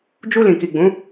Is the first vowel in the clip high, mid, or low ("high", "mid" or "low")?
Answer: high